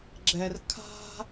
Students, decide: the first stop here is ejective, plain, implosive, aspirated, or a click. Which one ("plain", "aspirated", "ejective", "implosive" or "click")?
click